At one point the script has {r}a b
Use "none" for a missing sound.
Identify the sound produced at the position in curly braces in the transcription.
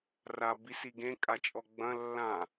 r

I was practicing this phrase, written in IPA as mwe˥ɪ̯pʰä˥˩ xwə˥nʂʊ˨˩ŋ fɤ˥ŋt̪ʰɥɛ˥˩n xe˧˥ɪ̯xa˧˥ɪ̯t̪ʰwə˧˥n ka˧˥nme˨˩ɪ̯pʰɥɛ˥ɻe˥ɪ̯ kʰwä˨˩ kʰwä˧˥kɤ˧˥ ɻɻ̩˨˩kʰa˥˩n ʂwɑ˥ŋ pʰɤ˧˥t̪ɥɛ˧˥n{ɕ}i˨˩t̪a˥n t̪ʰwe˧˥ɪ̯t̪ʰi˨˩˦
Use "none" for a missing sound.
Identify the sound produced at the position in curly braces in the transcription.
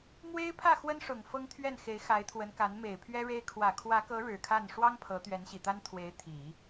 ɕ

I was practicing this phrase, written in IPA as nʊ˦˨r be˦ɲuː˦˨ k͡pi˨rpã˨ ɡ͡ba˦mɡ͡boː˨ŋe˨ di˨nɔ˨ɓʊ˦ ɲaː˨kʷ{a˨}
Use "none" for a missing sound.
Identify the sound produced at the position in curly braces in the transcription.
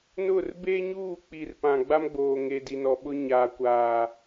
aː˨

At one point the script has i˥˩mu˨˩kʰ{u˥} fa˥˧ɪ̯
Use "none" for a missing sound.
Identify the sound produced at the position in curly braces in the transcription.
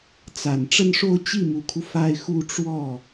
u˦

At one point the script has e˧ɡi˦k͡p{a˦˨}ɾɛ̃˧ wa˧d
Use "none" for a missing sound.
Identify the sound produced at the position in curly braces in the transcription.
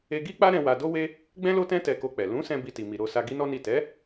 a˦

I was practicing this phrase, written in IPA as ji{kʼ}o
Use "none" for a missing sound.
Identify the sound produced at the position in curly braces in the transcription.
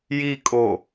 kʼ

